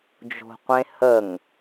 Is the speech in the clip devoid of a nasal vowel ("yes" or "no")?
no